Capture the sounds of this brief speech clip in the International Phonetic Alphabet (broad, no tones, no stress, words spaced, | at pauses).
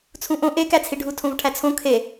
t͡sʰũʔõ ʔekæt͡sʰi ɖʱutʰõvʈʰæt͡sʰõ kʰe